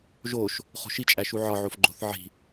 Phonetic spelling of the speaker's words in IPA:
ʒ o ʃ | χ o̤ ʃ i t͡ʃʼ æ ʃ u ʕ ɒ ʕ o f ɡ͡ǃ o̤ θ ʕ i̤

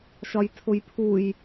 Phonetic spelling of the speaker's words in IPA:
ʃ ɒ j tʰ ʊ j pʰ u j

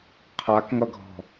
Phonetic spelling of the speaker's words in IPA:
qʰ a k ŋ ʌ ɡʱ ɔ̤

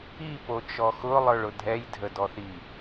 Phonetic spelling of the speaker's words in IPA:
i p o t͡ʃ ɔ x ʊ lˠ ə˞ ɭ ʊ dʱ ɛ j dʱ ə d ɔ θ i

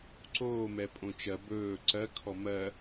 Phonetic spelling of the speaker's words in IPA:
ǀ oː m ɛ pʼ õ t͡ʃ ɜ b ɵː ǀ ɜ kʰ ɔ m ɜ

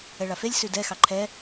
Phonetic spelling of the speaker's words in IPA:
ɛ ɭ a f e lʲ s ʉ d ɛ x ɑ ǃʰ ɛ

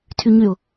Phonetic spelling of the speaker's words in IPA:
tʰ y ɲ y ʊ̯

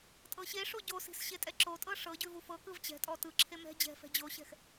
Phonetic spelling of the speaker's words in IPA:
tʼ ɤ ɕ e ʂ o ɟ o s i̤ s ɕ e tʼ ɛ ǁ o tʼ ɤ ʂ ɤ ɟ ʉ v u f ɤ k ɯ v t͡ɕ ɛ̤ tʼ ɔ t ɯ ǁʰ e m ɛ̤ d͡ʑ ɛ̤ f ɛ̤ d͡ʑ o ɕ ɛ̤ x

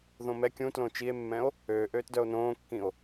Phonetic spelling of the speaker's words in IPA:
ð õ m ɛ kʲ ũ t l õ t͡ʃ i e̯ mː ɛ̃ o̯ | øː ʔ øː t d œ o̯ n õː kː ĩ o̯

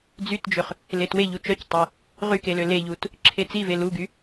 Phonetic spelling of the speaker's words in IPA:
d͡z y t d͡ʒ ø χ | l e t w e ʎ u t͡ʃ œ c tˤ e | ʁ y k e l ø l e ʎ u t | ǁʰ e t͡s i v e l u ɡ y

